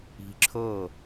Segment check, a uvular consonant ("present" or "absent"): absent